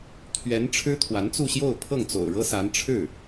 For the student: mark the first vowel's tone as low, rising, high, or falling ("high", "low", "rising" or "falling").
rising